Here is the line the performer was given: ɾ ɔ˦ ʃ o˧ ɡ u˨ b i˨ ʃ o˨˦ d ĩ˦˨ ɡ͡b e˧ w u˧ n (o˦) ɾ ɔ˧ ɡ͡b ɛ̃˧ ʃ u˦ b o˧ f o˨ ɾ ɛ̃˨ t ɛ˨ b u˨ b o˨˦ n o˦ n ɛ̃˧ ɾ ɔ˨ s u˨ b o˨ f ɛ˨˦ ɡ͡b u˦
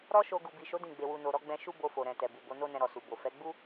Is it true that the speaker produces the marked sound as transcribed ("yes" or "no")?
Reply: no